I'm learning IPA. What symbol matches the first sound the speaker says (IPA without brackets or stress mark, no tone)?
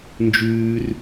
n